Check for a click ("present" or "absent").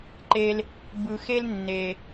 present